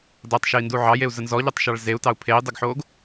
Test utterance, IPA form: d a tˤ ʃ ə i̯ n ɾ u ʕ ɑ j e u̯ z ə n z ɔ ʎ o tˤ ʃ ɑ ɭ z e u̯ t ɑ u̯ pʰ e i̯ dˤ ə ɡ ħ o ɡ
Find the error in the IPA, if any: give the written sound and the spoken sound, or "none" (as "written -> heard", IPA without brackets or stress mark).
ɾ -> d